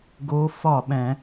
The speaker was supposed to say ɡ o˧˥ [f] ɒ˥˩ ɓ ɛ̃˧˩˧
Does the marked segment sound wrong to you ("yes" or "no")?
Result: no